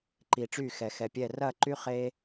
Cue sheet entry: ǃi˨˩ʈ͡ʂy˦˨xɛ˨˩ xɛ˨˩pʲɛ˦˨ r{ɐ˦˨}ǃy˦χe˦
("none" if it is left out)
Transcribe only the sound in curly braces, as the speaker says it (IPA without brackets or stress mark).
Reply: ɐ˦˨